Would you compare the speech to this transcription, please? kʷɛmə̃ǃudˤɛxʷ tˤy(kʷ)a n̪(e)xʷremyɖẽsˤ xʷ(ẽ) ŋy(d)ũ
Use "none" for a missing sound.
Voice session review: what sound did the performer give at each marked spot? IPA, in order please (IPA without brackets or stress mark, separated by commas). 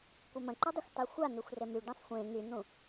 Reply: xʷ, ø, ẽ, n̪